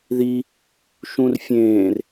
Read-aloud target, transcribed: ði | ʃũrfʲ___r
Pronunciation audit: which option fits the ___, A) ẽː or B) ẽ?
A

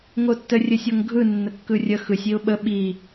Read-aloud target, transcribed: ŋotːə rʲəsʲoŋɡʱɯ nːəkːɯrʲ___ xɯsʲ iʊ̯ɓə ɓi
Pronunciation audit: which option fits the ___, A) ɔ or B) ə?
B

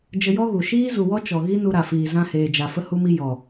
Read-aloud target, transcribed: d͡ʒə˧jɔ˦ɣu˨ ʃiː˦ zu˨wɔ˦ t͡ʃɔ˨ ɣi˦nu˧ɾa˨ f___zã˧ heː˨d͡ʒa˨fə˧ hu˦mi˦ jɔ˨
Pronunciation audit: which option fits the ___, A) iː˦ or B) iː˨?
B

